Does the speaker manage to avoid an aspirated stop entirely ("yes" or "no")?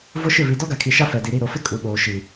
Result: no